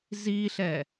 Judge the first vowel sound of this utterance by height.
high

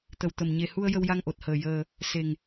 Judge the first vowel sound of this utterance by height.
mid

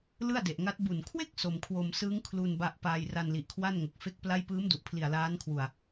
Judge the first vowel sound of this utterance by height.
high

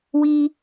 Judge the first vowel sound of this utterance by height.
high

